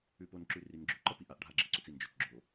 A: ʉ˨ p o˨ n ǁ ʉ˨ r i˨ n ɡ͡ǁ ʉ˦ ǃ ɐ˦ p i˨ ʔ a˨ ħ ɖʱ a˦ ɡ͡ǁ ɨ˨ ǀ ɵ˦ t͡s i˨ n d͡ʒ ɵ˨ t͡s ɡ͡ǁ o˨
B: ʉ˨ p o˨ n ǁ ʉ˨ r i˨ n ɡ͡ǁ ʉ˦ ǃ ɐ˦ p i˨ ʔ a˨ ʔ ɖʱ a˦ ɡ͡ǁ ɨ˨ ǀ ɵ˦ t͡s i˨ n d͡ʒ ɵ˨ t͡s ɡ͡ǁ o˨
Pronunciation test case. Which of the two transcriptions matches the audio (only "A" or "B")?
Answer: B